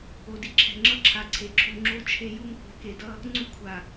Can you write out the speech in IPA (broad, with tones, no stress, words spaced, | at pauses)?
o˨di˨ǁʰɛ̤˨ŋ͡ǁʌ˦ ǁʰa˨ǀʰe˨ǁʰu˨ ŋ͡ǁo˦t͡ʃʰe˦ju˦ŋ kʷɛ̤˨˦ke˨dʌ˦ | ŋ͡ǀu˦kʷʰa˨